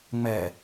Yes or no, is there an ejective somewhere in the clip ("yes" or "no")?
no